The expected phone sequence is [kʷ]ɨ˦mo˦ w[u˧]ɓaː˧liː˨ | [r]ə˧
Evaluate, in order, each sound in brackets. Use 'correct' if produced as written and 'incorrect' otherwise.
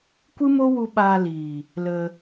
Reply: correct, correct, incorrect: l

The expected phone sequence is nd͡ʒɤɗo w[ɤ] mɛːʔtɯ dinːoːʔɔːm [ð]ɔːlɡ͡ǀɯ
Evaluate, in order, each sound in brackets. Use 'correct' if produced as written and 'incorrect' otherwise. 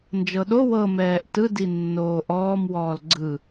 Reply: correct, incorrect: w

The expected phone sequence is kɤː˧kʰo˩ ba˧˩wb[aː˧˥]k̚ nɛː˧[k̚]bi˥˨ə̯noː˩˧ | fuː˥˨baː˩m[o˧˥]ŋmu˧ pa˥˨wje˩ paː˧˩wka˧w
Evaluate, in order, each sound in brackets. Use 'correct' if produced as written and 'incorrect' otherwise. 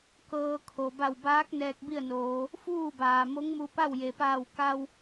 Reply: correct, correct, correct

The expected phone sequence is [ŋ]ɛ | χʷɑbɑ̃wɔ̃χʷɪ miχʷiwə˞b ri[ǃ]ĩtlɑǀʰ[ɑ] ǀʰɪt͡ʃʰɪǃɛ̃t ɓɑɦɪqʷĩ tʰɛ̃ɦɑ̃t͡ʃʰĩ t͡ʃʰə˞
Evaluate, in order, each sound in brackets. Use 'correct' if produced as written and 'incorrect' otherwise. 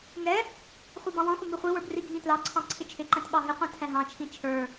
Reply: correct, incorrect: ɡʱ, incorrect: ɑ̃

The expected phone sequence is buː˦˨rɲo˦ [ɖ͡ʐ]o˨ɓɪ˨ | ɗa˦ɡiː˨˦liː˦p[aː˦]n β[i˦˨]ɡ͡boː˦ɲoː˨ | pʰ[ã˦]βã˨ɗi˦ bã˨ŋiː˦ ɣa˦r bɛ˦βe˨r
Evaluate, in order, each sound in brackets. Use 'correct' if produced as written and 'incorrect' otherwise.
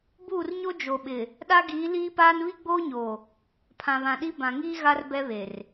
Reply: incorrect: d͡ʒ, correct, incorrect: i˦, incorrect: ã˨

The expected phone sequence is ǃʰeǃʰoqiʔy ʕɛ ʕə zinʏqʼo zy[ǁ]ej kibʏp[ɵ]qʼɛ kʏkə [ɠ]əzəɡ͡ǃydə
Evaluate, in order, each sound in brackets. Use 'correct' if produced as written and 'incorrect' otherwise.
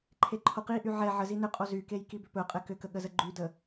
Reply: incorrect: k, correct, correct

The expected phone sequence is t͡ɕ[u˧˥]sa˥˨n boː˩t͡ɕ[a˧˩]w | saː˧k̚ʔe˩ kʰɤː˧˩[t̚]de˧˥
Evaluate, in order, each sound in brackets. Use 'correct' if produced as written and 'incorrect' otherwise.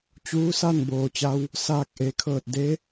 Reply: incorrect: uː˧˥, incorrect: a˧, correct

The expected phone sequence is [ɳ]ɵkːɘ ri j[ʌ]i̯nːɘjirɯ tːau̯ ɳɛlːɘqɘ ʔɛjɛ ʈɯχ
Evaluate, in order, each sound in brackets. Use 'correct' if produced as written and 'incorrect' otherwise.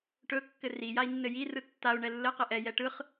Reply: incorrect: ʈ, incorrect: a

